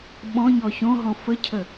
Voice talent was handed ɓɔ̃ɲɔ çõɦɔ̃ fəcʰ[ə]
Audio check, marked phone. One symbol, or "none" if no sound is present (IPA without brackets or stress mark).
ə